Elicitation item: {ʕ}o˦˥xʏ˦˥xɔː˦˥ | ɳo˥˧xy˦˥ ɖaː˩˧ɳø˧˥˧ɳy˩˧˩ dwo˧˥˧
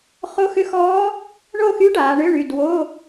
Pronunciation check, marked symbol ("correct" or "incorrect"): incorrect